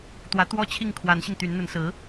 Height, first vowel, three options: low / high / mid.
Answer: low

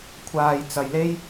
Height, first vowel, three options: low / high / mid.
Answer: low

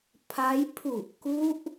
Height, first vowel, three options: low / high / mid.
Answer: low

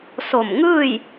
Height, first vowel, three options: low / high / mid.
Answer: mid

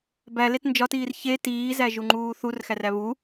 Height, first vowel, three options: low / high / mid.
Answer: low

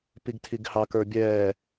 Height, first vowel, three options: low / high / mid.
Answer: high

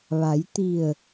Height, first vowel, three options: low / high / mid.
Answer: low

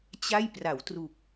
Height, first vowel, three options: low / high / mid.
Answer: low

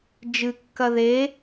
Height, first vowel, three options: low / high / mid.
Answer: high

